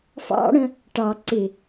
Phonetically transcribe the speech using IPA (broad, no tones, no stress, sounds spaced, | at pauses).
f ɑ̰ ɽ ə̃ | ʈ ɑ ǀ ɪ